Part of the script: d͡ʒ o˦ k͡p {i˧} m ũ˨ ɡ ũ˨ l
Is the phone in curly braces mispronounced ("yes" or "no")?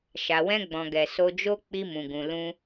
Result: no